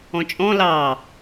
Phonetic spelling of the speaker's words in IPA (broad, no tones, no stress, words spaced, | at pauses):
ɔ̃t͡ʃʼɔ̃ lɑ